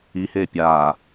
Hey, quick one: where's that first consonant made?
throat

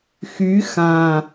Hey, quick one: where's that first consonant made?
velum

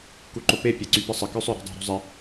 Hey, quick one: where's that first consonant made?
velum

